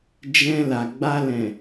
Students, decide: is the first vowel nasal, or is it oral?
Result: nasal